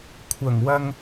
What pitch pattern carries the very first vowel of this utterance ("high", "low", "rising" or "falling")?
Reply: low